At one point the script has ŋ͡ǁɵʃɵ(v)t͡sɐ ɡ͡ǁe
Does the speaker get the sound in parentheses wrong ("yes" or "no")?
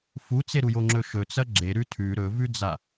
yes